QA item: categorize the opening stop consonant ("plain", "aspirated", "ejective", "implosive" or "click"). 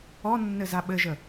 implosive